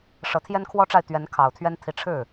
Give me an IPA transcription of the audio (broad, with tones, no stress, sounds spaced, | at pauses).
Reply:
ʂ ɤ˧˥ t̪ʰ j ɛ˥ n kʰ w ɔ˥ ʈ͡ʂ a˥˩ ɪ̯ t̪ ɥ ɛ˧˥ n kʰ ɑ˨˩ ʊ̯ t̪ʰ ɥ ɛ˥ n t̪ʰ i˧˥ ʈ͡ʂʰ ɻ̩˥˩